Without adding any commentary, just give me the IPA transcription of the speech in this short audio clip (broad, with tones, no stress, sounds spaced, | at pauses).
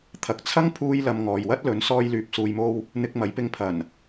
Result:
t̪ʰ ɐ˨ k̚ t͡sʰ ɐ˥ ŋ pʰ uː˧ j l ɐ˨ m ŋ ɔː˨ j w ɐ˥ t̚ l ɵ˨˥ n s ɔː˧ j l yː˨ p̚ s uː˨ j m o˧ w | n̪ ɪ˧ k̚ m ɐ˨˥ j p ɪ˧ ŋ pʰ ɐ˨˩ n